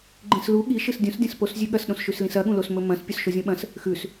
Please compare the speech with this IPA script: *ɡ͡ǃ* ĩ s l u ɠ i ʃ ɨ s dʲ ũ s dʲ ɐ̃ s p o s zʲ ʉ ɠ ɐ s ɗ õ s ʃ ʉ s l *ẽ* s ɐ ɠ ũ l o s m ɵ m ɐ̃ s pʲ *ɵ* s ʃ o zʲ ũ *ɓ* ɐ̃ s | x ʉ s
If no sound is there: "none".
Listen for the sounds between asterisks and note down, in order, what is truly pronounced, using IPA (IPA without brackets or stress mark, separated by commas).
ɡ͡ǃ, ĩ, ɵ, ɓ